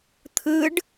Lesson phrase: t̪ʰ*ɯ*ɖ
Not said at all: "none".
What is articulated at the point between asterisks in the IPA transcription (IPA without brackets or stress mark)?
ɯ